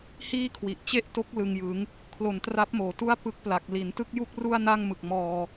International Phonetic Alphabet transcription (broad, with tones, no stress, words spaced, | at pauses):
hiː˥˩kʰwi˨˩ʔ t͡ɕe˥˩ʔto˦˥k̚ lɯ˨˩ŋjɯ˩˦ŋ | kʰlo˨˩ntra˦˥p̚moː˨˩tu˥˩a̯ pɯ˦˥k̚pla˨˩k̚ li˩˦n tɯ˥˩k̚ju˥˩k̚ru˥˩a̯ na˥˩ŋmɯ˨˩k̚mɔː˧